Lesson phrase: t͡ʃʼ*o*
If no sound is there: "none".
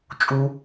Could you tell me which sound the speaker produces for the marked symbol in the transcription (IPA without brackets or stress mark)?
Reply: u